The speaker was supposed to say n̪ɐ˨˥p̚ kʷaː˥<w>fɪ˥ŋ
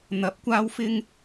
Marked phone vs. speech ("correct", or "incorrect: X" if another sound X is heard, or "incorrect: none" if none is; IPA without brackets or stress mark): correct